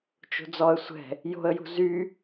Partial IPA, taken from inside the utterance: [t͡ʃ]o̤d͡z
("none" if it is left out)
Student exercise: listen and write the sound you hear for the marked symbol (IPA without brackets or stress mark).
t͡ʃ